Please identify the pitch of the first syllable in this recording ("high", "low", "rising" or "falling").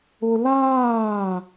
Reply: high